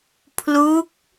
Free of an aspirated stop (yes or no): no